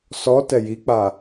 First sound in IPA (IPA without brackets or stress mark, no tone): s